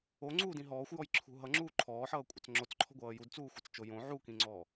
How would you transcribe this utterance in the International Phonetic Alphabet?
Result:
o ŋ͡ǀ uː d ĩ ɦ ɔː xʷ j ɔ j ǁʰ ṳ ɦ ʌ ŋ͡ǁ uː ǃʰ ɔː ħ ʌː kʷʼ ʌ t͡s ŋ͡ǁ o t͡s ǃʰ ɔ̤ ɡʷ ʌː j u d t͡s uː xʷ ʌ t͡s t͡ʃ o j õ ʕ u k ĩ ŋ͡ǀ ɔː

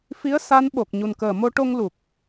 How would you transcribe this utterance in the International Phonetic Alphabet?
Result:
f i˧˥ ə̯ s a˧˥ n ɓ o˨˩ k̚ ɲ u˨˩ n k əː˨˩ m o˧ ʈ o˧ ŋ l u˨˩ k̚

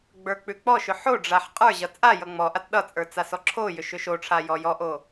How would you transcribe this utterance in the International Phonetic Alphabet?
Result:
ɡ͡b ə˞ k͡p ʉ k͡p ɔ ʃ ʏ ħ o ɖ͡ʐ a ħ qʼ ə˞ ʑ ʌ t͡sʼ a j ʌ ŋ͡m ɔ ʔ a t ɗ ʌ t͡sʼ ə˞ t͡s a s ɔ ǁʰ o j ʏ ʃ ʏ ʃ o ʈ͡ʂʰ a j ɔ j ɔ ʔ o

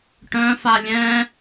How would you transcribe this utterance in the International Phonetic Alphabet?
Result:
ʈ œ̃ f a lʲ ɛ̃

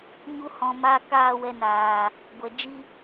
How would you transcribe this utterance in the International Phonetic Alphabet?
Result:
ɲ u˦ h ɔ̃˧ m a˦ k aː˦˨ w ɛ˧ n aː˨ | ɡʷ ɛ˨ d͡ʒ i˦

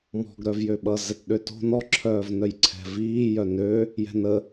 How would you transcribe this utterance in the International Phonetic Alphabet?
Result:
m ɔ̤ ɡ ɾ œ v j ø ɓ ʌ z ɛ t ɗ ø t o̤ n ɔ ǁʰ œː v n œ j ǀʰ ɛ̤ v iː j œ n ø | j ɛ̤ n ə

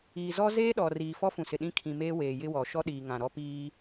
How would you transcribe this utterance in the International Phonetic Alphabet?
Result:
iː˨ z ɔ˦ z eː˦ ɗ ɔ˨ r iː˨ f ɔ˦ f ũ˨ s ɪ˨ ɗ ĩ˦ kʰ ĩ˨ m eː˦ w eː˨ j ɪ˦ w ɔ˨ ʃ ɔ˦ ɗ iː˨ ŋ ã˨ ɾ ɔ˦ p iː˦

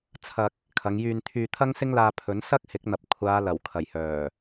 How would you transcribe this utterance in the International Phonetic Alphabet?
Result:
t͡sʰ ɐ˧ k̚ | kʰ ɐ˨˧ ŋ j yː˧ n t̪ʰ yː˧ t̪ʰ ɐ˥ ŋ s ɪ˥ ŋ l aː˧ pʰ ɵ˨˥ n s ɐ˥ k̚ h ɪ˨˥ k̚ n̪ ɐ˨ p̚ kʷʰ aː˨˧ l ɐ˨˩ w kʰ ɐ˨˩ j h œː˨˩

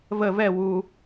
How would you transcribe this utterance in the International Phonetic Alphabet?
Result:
v ə v ɛ w u

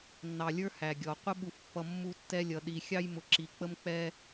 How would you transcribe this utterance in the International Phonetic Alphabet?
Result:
nː ɑ˨ lʲ ə˞˦ h æ˨ ɡʲ ɔ˨ qʷ ɪ˦ ɓ u˨ f pː ʌ˨ mː u˦ tː ɛ˦ lʲ ʌ˨ ɗ i˨ xʲ ɑ˦ j m ʊ˨ ǁ i˨ k͡p ə˦ m k͡p ɛ˦

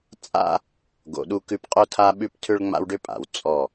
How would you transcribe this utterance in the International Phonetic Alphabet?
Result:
t͡sʼ a̰˦ | ɡ o̰˨ ɗ u˦ k ʉ˦ p qʼ o˦ tʰ a˦ ɓ ʉ˦ p tʰ ʏ˦ ɭ ŋ͡m a̰˦ w ɖ ʏ˦ pʼ a̰˨ w t͡sʼ ɔ˦˨

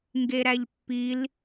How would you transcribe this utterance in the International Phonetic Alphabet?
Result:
ŋ ɡ e ɾ æ ʎ pː i l

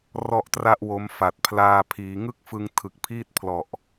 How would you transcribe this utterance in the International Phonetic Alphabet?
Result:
r ɔ˥˩ ʔ t r a˥˩ ʔ w o˦˥ m f a˨˩ t̚ pʰ l aː˧ pʰ iː˩˦ ŋ ɯ˥˩ k̚ f ɯ˧ ŋ tʰ ɯ˨˩ k̚ pʰ iː˥˩ t̚ pʰ l ɔ˨˩ ʔ

